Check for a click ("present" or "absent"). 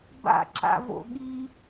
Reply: present